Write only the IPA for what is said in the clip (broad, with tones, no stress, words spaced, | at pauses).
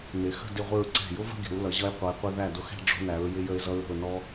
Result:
nɪ˩˧xə̤˥˧ dɪ˥˧ʁʷɪ˥˧ɹ ǀɛ̤˧˩jʊ˥və̤˥˧ɡʲə̤˩˧w lʌ˩˧ʑʌ˧jqʷʌ˩˧jqʷɪ˧ ðæ˧˩dʊ˧xɛ̤˥˧ ɖ͡ʐɔ̤˧næ˩˧ɹ jɪ˧jə˧ɪ̯zʌ˧ɹə̤˧˩ʊ̯ nɔ˧